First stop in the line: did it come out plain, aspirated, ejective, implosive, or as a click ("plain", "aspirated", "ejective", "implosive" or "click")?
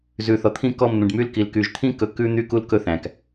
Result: aspirated